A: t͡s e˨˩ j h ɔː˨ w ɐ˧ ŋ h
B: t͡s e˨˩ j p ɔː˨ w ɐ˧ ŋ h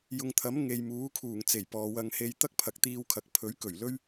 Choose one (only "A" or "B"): B